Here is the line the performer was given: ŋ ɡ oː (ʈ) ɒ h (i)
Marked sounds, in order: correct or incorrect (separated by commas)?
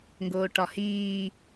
correct, incorrect